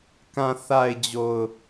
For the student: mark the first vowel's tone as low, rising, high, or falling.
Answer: low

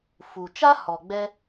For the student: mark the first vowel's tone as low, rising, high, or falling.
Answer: low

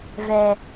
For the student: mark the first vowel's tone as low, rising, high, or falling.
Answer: low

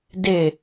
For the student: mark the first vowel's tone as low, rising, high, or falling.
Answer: falling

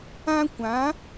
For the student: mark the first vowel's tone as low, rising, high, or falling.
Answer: high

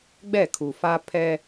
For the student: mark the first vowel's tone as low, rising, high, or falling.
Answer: falling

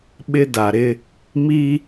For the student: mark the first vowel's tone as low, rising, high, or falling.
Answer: high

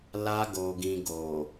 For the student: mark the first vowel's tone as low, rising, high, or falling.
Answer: high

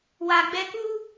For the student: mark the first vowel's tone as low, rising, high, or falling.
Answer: low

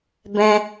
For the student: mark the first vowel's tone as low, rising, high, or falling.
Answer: high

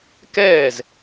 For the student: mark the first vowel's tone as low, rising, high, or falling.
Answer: falling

